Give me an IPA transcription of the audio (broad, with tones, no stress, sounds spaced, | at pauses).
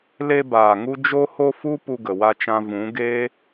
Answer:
l e˧ b aː˨ ŋ u˧ d͡ʒ o˧ h o˧ f u˦ p u˧ ɡ ə˨ w a˧ t͡ʃ ã˧ v ũ˨˦ ɡ e˦